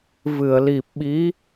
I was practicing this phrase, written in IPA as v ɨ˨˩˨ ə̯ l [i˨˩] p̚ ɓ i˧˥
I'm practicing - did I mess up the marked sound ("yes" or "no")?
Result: no